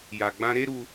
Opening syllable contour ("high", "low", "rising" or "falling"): low